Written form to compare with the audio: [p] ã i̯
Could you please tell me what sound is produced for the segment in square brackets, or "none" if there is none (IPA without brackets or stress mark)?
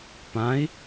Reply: p